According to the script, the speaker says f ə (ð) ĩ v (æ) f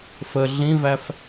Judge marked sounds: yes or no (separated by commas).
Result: no, yes